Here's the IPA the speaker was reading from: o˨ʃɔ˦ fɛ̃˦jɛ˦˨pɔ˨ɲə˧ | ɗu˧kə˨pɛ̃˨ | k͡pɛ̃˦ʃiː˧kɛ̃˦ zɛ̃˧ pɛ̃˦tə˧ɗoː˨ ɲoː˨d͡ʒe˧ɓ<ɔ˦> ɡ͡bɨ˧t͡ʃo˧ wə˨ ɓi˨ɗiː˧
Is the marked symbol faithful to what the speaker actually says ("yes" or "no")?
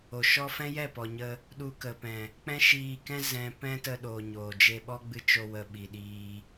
yes